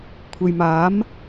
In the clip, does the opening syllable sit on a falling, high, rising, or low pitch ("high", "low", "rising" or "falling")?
low